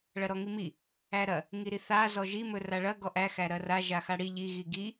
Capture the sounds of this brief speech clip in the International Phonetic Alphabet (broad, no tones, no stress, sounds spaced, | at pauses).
ɭ ɐ ɾ ɔ ŋ i m i | æ ɾ ɐ | ŋ i ɾ i θ a z ɔ ʒ i m ɵ r a ɭ ɐ ɡ ɔ ʔ æ x æ ɾ ɐ r a ʒ a x a ɽ i ʎ i ɣ i ɡ i